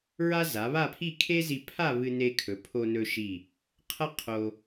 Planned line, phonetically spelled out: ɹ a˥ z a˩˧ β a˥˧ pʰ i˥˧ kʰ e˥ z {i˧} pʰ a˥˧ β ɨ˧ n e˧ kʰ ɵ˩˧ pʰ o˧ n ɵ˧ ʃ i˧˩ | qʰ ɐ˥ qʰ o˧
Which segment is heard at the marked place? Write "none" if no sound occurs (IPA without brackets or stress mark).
i˧